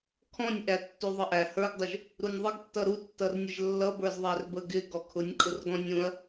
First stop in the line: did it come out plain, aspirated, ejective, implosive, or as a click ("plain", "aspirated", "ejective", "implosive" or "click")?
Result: aspirated